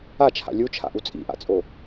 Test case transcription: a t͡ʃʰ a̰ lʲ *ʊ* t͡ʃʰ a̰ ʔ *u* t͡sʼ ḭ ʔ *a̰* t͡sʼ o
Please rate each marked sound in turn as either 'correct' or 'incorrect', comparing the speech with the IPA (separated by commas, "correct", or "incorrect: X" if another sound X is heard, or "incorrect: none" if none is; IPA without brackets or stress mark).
incorrect: u, correct, correct